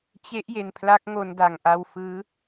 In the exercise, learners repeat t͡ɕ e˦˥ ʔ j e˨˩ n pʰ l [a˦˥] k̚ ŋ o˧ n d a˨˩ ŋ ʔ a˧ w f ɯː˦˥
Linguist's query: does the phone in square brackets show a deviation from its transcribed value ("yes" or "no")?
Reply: no